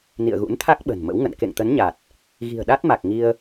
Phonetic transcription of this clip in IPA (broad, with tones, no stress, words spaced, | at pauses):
nḭ˧˨ə̯ɣṵ˧˥nt̪ʰa˦˥k̚ ɓə̤˨˩nmə̰˧˥wŋə̰˧˨n kḛ˧˨ŋt̪ə˨˦nɲa˨˩t̚ | ɣi̤˨˩ə̯ɗa˦˥t̚ma˨˩k̚ŋi˧ə̯